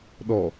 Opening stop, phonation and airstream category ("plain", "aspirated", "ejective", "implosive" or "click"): implosive